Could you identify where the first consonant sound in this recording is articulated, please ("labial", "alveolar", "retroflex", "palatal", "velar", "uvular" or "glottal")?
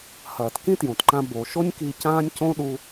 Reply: glottal